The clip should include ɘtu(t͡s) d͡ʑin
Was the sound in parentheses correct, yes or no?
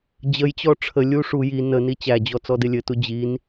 no